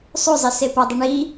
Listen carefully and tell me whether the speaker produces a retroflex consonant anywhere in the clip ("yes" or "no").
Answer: yes